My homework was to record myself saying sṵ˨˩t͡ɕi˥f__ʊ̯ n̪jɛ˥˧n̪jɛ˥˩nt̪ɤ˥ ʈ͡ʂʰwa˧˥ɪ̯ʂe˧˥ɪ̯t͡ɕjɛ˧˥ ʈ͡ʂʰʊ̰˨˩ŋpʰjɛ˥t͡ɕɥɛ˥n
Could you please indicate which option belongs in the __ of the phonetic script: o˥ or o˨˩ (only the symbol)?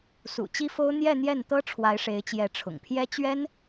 o˥